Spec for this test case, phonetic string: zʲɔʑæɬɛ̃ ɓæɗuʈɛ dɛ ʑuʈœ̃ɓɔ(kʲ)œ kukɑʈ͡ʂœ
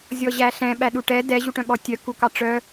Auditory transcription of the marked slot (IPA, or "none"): tʲ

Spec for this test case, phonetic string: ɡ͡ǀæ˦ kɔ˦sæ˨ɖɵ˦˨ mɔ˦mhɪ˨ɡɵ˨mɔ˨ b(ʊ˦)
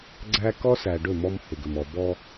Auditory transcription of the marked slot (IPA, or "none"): ɔ˦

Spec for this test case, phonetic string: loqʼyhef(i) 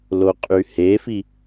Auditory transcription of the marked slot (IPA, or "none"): i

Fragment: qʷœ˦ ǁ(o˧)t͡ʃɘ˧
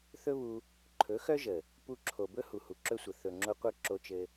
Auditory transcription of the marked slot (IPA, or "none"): o˧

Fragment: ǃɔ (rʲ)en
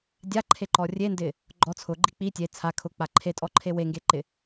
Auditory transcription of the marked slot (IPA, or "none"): rʲ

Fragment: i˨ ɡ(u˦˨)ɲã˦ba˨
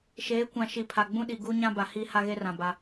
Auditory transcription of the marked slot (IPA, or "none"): u˦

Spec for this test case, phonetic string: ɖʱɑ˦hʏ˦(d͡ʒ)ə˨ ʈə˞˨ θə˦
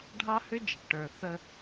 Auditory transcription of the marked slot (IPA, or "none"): d͡ʒ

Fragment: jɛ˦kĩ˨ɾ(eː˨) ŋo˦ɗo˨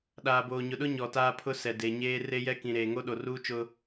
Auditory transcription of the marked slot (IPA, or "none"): eː˨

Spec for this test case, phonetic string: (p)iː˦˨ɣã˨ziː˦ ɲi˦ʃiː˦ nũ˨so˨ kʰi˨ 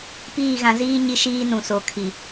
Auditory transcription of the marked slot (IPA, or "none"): p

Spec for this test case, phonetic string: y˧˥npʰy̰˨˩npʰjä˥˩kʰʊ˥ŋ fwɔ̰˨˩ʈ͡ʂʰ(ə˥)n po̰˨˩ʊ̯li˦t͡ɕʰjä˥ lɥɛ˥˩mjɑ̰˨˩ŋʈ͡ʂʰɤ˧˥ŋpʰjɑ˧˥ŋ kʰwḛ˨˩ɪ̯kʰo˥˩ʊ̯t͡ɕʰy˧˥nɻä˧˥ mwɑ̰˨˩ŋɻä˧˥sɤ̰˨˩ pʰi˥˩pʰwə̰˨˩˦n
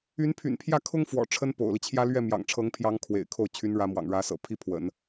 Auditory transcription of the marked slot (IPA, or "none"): ə˥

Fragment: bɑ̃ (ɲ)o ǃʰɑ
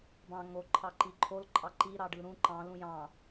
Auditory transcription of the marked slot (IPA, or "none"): ŋ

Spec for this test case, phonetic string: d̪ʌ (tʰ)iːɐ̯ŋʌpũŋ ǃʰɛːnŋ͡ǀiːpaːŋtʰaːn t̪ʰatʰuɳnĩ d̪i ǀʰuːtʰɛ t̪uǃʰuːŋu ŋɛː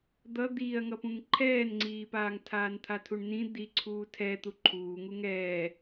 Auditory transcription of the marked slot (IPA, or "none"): d̪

